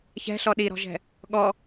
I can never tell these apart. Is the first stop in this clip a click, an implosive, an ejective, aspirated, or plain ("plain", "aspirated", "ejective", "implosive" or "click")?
implosive